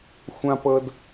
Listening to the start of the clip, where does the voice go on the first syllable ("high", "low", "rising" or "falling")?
high